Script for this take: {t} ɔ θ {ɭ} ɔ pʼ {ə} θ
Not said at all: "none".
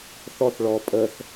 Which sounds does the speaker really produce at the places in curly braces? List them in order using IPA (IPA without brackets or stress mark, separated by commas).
θ, ɭ, ə